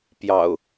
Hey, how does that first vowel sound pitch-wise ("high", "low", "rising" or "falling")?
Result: low